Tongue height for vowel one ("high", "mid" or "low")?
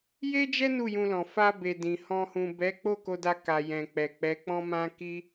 mid